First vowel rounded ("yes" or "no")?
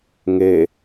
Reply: no